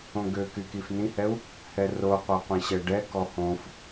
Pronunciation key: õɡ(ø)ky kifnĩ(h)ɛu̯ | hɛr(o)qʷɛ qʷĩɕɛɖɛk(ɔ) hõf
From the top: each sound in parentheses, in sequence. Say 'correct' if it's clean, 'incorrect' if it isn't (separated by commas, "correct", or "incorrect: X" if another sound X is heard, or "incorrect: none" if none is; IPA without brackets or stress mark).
correct, correct, correct, correct